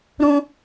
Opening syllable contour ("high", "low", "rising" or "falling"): high